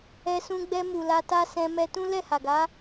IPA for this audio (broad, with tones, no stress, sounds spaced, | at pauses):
ɛ˧ s ũ˧ ɡ͡b ɛ˧ m u˨ l a˧ t a˦ s ɛ̃˧ m ɛ˧ t ũ˦ l ɛ˦˨ h a˨ ɡ a˨˦